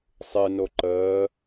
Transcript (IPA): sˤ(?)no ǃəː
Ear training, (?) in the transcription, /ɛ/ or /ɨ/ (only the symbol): ɨ